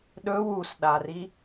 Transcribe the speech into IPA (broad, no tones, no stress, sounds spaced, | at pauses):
ɗ ɵ w u s ɗ a r i